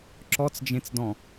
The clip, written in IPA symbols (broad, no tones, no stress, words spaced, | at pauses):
ǁɔt͡sd͡ʒẽt͡sdɔ̃